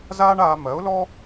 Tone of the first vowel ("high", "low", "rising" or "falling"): high